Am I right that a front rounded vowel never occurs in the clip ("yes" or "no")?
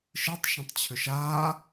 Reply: no